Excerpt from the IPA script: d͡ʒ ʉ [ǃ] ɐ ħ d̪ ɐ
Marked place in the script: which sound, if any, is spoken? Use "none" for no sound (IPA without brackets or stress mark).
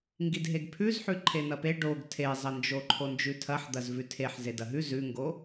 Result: tʰ